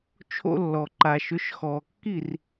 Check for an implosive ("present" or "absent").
absent